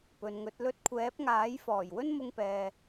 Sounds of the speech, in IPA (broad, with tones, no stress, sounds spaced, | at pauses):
p ɵ˨ n ŋ ɵ˨˥ t̚ l ɵ˥ t̚ kʷʰ ɛː˨˥ p̚ ŋ aː˨˥ j f ɔː˨˩ j w ɵ˥ n m ʊ˥ ŋ p ɛː˧